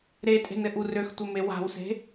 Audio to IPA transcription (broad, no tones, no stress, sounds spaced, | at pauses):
ɾ e tʼ e̤ n ɘ ʔ u r ø x tʷ ɘ m e w a̤ w s e̤